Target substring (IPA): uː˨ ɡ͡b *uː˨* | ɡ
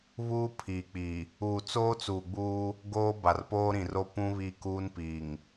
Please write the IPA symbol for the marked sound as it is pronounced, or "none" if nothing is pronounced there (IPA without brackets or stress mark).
uː˦